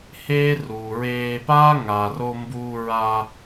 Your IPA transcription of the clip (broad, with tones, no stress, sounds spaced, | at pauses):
h eː˦ r uː˨ ɹ eː˧ p aː˦ ŋ aː˨ r o˧ m b uː˧ ɹ a˧